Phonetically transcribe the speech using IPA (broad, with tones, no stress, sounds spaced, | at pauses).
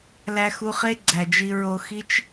l æ˧ x u˧ χ e˦ ɡ͡ǀ æ˨ d͡ʒ i˧ ɹ o˦ x i˦ t͡ʃ